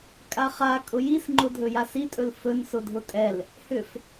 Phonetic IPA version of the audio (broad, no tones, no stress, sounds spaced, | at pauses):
kʼ a χ a kʼ ʊ j i s ŋ͡ǃ ʊ dʱ ɵ j a s i tʼ ɵ l f ɵ n s ʊ dʱ ʊ tʼ ɛ l | h ʏ f